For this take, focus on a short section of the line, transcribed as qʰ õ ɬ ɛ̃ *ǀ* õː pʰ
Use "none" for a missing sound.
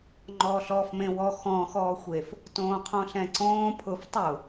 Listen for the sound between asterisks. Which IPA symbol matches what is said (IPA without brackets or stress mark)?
ǀ